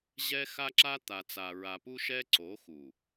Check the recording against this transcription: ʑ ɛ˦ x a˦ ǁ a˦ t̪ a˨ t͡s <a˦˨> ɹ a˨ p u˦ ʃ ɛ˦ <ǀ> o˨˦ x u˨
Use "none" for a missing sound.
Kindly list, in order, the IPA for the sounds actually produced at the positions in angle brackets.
a˨, ǀ

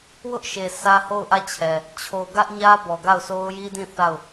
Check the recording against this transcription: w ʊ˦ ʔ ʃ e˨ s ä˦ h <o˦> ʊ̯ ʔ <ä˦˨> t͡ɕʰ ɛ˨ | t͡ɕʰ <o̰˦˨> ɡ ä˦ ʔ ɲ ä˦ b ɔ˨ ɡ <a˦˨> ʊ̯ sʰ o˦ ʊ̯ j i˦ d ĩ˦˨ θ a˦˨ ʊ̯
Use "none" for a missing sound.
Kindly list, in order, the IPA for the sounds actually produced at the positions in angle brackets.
o˦˨, ä˦˨, o˨, a˦˨

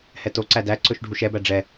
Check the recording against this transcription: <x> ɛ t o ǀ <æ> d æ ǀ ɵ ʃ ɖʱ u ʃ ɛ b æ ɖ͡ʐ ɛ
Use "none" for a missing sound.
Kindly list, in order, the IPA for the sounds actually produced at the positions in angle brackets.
h, æ

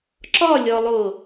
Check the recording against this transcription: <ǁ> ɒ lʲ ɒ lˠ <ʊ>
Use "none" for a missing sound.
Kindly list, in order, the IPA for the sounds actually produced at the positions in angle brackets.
ǁ, ʊ

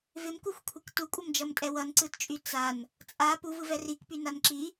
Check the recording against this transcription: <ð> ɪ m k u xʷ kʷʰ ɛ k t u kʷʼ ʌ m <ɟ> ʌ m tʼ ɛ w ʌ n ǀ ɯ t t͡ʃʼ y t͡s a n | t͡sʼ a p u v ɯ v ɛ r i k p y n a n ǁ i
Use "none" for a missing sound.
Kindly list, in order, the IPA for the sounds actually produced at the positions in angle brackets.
v, d͡ʒ

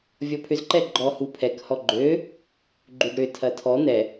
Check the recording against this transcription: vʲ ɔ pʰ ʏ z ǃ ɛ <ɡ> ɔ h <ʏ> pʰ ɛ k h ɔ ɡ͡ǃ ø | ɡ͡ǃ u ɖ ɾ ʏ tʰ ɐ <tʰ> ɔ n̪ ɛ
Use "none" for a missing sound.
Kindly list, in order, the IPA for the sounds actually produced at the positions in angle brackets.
ɡ͡ǃ, u, tʰ

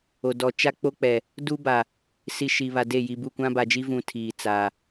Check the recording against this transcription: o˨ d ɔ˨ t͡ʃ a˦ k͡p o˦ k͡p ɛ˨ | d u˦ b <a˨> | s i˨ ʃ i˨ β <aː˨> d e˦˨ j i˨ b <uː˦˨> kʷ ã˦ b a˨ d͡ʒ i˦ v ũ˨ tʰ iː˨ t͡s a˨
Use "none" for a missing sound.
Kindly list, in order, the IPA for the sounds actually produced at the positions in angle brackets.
a˨, a˨, u˦˨

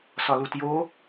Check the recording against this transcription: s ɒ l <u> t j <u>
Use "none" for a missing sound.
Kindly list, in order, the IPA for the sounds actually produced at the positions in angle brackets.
u, o

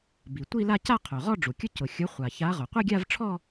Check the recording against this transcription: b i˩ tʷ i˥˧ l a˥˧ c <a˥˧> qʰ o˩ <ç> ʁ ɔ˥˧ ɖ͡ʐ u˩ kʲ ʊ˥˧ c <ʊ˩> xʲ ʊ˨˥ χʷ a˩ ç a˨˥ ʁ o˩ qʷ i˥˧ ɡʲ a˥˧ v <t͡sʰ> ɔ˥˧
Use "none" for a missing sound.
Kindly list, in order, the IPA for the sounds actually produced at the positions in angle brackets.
a˥˧, none, ʊ˩, ʈ͡ʂʰ

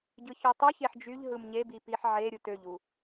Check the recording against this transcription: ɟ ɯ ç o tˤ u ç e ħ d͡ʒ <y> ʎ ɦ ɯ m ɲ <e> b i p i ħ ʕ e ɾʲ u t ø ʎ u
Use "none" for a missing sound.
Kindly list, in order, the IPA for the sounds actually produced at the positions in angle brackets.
y, e

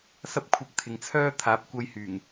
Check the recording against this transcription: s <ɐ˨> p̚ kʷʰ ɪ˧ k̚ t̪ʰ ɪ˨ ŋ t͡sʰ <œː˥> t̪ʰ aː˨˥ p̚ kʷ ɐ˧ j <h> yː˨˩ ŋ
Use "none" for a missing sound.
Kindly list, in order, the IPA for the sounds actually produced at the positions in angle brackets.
ɐ˥, œː˥, h

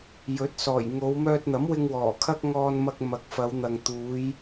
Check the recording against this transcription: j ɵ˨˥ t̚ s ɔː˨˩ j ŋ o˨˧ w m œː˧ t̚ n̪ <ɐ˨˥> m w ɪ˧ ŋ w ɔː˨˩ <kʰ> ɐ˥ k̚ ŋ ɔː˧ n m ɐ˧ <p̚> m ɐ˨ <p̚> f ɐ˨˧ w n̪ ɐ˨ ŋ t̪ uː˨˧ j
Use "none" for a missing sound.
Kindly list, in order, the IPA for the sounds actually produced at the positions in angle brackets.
ɐ˨˥, kʰ, k̚, k̚

